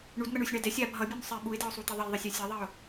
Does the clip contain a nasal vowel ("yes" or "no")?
no